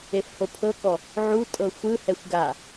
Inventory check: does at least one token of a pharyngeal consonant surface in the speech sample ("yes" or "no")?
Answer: yes